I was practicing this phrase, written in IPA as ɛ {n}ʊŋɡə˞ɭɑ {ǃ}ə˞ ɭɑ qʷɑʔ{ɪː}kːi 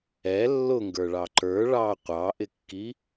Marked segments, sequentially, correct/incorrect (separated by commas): incorrect, correct, incorrect